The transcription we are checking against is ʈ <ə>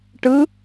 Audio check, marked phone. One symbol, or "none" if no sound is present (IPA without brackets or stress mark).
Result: ɯ